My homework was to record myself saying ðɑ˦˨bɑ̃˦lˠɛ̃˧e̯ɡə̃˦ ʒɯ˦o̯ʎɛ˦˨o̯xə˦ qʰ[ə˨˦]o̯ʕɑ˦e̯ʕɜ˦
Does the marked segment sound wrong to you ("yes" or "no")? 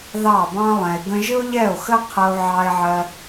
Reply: yes